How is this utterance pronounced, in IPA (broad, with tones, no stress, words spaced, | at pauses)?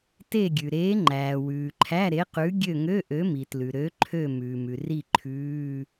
te˦˨ɡʲʉ˩ ɾeː˨˥ŋ͡ǃæː˩wʉː˩ ǃʰæ˧˥˧ɾe˨˥qʉ˨˥ ɡʲø˦˨ŋø˧˥˧ʔø˨˥mi˩ tlʉ˩ɾø˨˥ ǃʰø˦˨ mʉː˩mʉ˩ri˦˨ ǃʰʉː˧˥˧